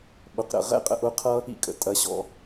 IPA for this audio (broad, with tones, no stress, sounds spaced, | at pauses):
ɓ ʊ˨ q ɾ ə̰˨ ʁ ɛ̰˦ qʼ ə̰˧ ʔ ʊ˦ qʰ ʌ˦ | ḭ˦ kʼ ə̰˨ tʼ ɐ˨˦ ɕ ɔ̰˧